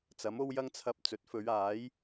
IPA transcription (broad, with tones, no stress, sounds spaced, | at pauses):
t͡s ɐ˨˥ m o˥ w j ɐ˥ ŋ t͡sʰ ɐ˧ p̚ t͡s ɵ˨˥ t̚ f ɵ˨˧ ɥ aː˨˥ j